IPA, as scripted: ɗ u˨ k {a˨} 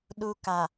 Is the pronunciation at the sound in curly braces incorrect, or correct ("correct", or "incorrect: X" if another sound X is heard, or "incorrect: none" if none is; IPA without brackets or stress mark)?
correct